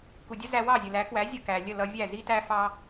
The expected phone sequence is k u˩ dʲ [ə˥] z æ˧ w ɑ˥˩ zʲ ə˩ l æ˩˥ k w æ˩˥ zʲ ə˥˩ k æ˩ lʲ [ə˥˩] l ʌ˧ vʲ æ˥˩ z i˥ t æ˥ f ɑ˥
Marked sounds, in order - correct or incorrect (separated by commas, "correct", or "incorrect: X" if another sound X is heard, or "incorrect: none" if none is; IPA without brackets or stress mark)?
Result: correct, correct